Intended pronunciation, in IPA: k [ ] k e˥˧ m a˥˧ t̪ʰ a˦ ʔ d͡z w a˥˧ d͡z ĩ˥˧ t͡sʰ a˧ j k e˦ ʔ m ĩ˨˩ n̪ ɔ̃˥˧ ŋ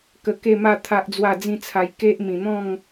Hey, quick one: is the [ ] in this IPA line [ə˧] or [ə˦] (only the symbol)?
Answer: ə˧